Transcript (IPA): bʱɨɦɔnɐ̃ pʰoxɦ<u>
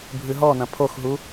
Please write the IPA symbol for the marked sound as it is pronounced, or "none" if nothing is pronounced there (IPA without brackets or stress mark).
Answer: u